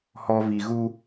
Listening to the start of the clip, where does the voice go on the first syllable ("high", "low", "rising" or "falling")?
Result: high